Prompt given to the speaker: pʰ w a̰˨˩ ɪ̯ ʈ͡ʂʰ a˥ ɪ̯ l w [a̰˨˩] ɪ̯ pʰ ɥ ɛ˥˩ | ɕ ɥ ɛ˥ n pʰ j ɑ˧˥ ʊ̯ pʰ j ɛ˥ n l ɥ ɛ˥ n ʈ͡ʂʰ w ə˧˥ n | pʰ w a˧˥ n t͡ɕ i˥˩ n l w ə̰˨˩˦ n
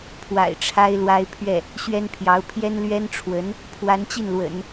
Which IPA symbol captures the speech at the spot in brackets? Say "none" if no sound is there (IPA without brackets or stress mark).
a˥